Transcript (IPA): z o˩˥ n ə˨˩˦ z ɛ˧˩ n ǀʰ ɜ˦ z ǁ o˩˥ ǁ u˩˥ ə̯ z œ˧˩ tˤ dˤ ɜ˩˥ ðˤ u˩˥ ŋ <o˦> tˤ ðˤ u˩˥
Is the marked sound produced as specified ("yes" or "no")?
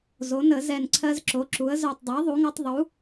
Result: yes